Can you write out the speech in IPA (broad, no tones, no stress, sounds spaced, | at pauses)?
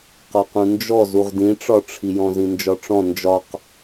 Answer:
q ɒ q ũ n d͡ʒ ɔ z u ʁ d ĩ ʈ͡ʂ ɒ ʈ͡ʂʰ i j ɔ̃ z ĩ n d͡ʒ ɒ ʈ͡ʂ ɔ̃ n d͡ʒ ɒ q